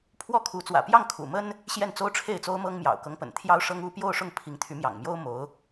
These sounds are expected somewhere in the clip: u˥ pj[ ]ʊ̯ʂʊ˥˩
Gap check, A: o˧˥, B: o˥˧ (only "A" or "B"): B